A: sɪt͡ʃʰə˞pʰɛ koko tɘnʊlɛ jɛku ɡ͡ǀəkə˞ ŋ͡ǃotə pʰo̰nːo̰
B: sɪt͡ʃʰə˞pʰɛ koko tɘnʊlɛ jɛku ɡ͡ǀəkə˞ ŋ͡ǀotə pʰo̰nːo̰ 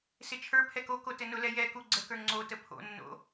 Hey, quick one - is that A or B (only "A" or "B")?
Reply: B